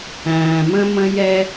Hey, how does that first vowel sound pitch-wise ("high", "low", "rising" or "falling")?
low